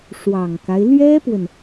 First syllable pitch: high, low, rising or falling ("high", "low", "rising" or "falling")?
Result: low